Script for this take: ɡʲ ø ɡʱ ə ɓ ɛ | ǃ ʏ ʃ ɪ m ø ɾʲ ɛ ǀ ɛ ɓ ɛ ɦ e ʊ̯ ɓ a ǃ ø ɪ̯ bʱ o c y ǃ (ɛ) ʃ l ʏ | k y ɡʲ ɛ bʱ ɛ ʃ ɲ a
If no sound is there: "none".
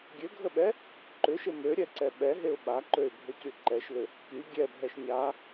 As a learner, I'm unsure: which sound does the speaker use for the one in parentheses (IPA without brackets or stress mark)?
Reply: ɛ